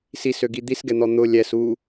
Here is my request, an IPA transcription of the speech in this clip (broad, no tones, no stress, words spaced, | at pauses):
sisøɡi d̪isɡɛn̪ɔ n̪ʊ lʲɛs u